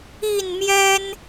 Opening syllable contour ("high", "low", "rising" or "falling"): falling